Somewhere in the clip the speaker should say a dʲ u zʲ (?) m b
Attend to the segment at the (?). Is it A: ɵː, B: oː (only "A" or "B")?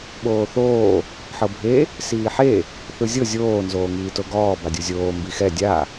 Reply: B